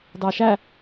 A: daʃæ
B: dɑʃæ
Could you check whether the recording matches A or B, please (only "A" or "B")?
B